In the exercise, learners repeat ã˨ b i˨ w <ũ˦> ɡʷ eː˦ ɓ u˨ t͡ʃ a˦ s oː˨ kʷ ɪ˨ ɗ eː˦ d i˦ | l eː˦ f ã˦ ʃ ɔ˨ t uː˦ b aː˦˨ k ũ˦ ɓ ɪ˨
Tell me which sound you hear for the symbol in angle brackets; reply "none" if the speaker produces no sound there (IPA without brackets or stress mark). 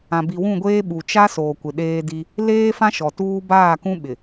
ũ˦˨